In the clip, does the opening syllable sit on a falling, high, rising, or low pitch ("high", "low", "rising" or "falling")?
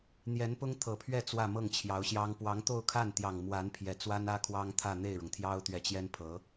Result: rising